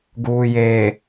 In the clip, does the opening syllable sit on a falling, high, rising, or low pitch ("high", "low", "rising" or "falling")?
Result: low